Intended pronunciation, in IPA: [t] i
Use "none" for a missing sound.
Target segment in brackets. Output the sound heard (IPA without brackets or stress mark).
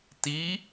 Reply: t